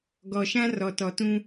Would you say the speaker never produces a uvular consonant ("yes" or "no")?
yes